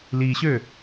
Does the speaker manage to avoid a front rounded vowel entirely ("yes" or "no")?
no